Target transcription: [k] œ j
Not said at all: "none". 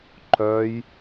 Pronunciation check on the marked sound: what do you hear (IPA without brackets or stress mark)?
ǃ